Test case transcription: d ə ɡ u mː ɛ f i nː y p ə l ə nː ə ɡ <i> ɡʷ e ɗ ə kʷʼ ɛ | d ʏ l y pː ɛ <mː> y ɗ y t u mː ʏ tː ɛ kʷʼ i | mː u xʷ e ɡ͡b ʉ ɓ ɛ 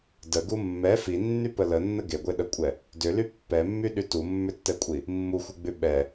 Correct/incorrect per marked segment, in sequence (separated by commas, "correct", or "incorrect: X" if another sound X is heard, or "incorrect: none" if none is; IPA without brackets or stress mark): incorrect: e, correct